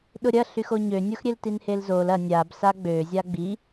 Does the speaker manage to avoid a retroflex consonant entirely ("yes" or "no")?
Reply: yes